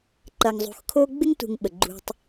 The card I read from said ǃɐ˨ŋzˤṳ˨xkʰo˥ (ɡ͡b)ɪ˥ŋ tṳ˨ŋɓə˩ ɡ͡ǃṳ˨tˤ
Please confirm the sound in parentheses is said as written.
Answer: yes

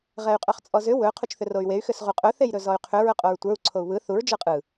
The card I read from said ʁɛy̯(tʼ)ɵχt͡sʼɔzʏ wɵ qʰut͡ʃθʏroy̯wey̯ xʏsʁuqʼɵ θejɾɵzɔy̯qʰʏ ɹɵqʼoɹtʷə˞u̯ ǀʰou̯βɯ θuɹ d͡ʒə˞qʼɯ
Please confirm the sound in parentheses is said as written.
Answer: no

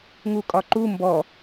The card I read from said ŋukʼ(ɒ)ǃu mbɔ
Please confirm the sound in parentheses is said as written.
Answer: yes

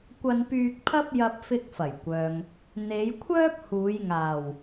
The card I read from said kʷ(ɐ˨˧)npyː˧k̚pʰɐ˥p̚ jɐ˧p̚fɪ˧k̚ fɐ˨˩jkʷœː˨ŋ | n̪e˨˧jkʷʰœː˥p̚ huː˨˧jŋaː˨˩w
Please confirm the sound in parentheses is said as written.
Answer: no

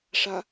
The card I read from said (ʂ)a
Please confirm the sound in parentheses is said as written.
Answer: yes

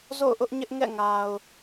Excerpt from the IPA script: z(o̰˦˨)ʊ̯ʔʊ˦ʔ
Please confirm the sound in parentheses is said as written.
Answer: yes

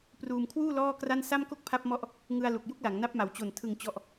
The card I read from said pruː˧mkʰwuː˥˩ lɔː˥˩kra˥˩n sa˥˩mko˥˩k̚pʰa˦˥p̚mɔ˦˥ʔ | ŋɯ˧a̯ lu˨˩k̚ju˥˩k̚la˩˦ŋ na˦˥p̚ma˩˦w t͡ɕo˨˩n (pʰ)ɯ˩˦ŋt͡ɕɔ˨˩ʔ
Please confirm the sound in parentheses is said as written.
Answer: no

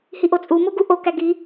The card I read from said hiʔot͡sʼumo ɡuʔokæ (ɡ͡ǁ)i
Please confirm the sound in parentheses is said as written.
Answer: no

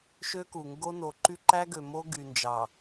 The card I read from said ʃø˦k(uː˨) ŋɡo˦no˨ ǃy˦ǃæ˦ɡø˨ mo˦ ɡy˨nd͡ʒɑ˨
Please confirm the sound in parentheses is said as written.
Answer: no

